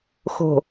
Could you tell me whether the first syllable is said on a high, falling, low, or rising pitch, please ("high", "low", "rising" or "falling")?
low